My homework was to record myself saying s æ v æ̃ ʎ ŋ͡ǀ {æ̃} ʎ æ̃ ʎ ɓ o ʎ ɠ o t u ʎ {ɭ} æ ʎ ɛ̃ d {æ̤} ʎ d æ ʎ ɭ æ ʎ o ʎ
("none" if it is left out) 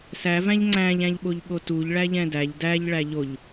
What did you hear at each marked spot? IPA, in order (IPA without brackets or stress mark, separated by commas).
æ̃, ɭ, æ